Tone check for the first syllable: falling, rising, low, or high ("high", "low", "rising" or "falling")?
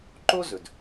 high